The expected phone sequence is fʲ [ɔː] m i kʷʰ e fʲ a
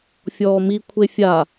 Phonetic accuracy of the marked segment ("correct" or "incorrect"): correct